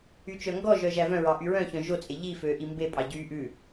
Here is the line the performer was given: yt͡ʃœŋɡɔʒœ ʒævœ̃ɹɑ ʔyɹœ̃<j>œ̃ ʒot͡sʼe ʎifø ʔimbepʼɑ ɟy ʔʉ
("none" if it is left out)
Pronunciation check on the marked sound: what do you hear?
ç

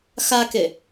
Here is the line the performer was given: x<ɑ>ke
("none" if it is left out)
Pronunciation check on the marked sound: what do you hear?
a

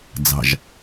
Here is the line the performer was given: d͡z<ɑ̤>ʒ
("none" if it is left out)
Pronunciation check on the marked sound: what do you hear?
ɑ̤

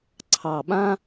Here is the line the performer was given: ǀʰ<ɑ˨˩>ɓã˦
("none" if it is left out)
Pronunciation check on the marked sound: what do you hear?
ɑ˨˩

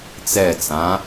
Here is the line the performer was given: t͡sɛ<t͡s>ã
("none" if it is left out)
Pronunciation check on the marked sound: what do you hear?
t͡s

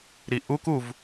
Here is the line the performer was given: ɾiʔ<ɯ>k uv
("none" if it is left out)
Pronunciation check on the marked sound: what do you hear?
u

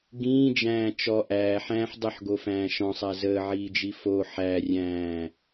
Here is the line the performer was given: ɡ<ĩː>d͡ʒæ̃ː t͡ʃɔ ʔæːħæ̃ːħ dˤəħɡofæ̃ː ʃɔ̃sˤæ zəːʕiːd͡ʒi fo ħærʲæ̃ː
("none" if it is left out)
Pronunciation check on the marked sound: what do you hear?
ĩː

